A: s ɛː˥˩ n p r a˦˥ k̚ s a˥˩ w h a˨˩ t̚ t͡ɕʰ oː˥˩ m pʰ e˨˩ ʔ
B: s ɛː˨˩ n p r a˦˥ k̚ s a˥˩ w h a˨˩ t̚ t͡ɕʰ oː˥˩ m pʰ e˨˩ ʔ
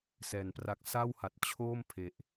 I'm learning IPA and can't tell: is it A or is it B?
B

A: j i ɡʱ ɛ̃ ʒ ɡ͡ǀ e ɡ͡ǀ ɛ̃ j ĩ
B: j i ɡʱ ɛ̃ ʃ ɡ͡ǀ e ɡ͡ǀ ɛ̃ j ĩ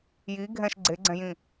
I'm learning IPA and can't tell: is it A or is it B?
B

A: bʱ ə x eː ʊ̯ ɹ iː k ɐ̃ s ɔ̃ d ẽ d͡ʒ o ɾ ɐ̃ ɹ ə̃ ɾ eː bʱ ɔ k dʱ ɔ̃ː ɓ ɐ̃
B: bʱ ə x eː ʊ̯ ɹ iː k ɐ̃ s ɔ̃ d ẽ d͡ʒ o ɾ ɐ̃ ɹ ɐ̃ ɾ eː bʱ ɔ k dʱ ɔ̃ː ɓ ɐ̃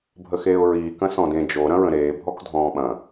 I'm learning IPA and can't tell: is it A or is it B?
A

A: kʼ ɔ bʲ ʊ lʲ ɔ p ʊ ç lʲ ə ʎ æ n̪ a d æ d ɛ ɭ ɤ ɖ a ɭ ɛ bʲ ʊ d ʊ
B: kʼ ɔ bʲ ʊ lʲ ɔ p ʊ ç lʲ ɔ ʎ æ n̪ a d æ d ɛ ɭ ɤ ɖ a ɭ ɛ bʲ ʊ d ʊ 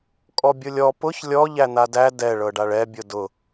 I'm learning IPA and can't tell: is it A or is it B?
B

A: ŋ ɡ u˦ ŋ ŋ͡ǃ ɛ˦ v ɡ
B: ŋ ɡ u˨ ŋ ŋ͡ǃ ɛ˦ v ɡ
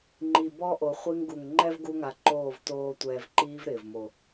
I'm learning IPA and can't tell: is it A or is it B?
B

